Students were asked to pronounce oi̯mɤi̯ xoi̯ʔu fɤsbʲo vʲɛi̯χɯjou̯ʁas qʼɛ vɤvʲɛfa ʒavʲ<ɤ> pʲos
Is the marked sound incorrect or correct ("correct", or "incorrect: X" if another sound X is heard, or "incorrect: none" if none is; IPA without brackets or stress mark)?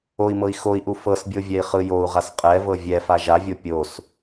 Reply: incorrect: o